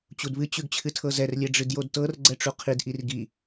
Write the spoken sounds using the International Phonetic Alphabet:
t͡ɕ u d β ɨ t͡ɕ ʉ ɡ t͡ɕʰ ɨ tʰ ɤ z ɛ r lʲ ɛ ɖ͡ʐ ɨ d j o d t ɤ r ɡ͡ǀ ɛ ʈ͡ʂ u qʰ i d ʔ i r ɡ i

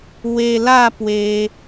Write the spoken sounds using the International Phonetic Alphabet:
w e˧ l a˥˧ p w e˧

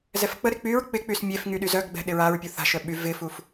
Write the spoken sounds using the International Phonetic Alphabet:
z ɛ f k͡p ə ɾ ɪ k͡p y ɹ k͡p ɪ k͡p y s mʲ e f ŋ y ɗ y z œ ɡ ɡ͡b ɛ̤ ɗ ɪ ɹ a ɹ pʲ u θ a̤ ʃ œ ɓ y v ɪ f u f

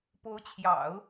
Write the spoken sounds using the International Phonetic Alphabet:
p o˧˥ ʊ̯ t͡ɕʰ j ɑ̰˨˩˦ ʊ̯

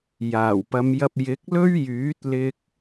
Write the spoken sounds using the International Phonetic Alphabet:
j aː˨˩ w p ɐ˨˧ m j ɐ˧ p̚ j ɪ˨˥ k̚ l ɵ˥ ɥ j yː˨˥ t̚ l ɪ˧ k̚

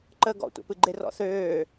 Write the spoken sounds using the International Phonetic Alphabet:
ǃ ə ɡ ɔ̰ tʷ ɛ̰ p ɨ ɡ͡ǃ e r ɔ̰ θ øː

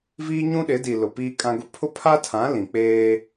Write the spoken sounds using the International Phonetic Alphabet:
v iː˦ ɲ ũ˦ ɗ ɪ˨˦ d i˨ l ʊ˨ p iː˦ kʼ ã˦ ɡ ʊ˦ pʰ ʊ˦ pʰ a˦ tʰ ã˨˦ l ĩ˨ k͡p eː˦

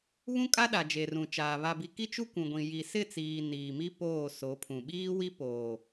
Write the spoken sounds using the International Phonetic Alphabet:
β ũ˦ kʼ a˦ ɗ a˨ d͡ʒ e˨ r ũ˨ t͡ʃ aː˨ β a˨ b i˨ k i˦ t͡ʃ u˦ kʷ ũ˨ ɡʷ ĩ˨ j i˨ s ɪ˦˨ t͡s iː˨ n iː˨ m i˦ p oː˦˨ s o˨˦ pʰ ũ˨ ɓ iː˦ w i˦ p oː˨

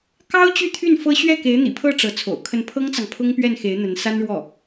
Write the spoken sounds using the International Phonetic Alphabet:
k ɑ˥ ʊ̯ t͡ɕ y˥˧ t̪ʰ y˥˩ n f ɤ˥ ɕ ɥ ɛ˥˩ k e˧˥ ɪ̯ n̪ ḭ˨˩ pʰ ɤ˥˩ ʈ͡ʂ ɤ˧˥ t͡sʰ o̰˨˩ ʊ̯ kʰ ə˥˩ n pʰ ɤ˥ ŋ t͡s ɑ˨ ŋ pʰ ʊ˥ ŋ p ɥ ɛ˥˩ n x e˧˥ ɪ̯ n̪ ə˧˥ n s a˥ n ɻ w ɔ˥˩

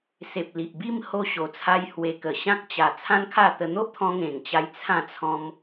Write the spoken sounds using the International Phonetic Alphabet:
s e˨ p̚ l i˨ ʔ b i˥˧ m h o˧ ɕ o˨˩ t͡sʰ a˧ j h w e˧ k ə˨˩ ɕ ã˦ k̚ t͡ɕ a˨˩ t͡sʰ ã˦ n kʰ a˥˧ t̪ ə˧ n̪ o˦ ʔ t̪ʰ ɔ̃˧ ŋ ẽ˨˩ ŋ t͡ɕ a˦ j t͡sʰ ã˥˧ t͡sʰ ɔ̃˦ m

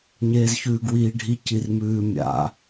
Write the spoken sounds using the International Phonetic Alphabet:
ɲ eː z ç ʉː ɡ w iː ɖʱ i c i r m ʉː mʲ a̰

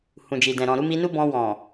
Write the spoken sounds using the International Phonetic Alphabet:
h ũ˨ d͡ʒ i˨ d ɛ̃˨ ɾ ɔ̃˨ ɾ u˨˦ m i˧ n u˦ b ɔ̃˧ w ɔ̃˨

